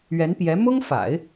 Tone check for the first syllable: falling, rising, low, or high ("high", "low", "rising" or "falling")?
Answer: rising